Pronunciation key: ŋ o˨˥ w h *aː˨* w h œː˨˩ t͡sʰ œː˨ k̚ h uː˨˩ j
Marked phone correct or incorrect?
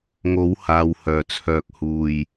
correct